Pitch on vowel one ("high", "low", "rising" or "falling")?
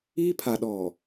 high